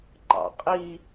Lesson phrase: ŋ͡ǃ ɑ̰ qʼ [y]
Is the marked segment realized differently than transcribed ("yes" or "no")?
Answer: yes